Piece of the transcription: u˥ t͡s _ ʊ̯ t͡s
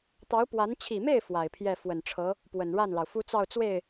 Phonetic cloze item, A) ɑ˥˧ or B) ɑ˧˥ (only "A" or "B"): A